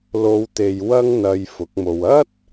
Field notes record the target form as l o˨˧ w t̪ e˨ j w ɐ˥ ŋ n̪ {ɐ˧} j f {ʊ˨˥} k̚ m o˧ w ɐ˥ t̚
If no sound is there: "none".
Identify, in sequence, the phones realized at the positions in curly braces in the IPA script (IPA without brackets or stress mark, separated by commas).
ɐ˧, ʊ˨˥